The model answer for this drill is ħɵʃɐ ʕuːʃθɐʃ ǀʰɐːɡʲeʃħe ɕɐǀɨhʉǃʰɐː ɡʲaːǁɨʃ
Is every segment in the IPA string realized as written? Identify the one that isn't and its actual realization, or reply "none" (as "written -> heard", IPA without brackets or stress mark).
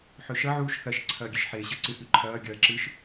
aː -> ɐː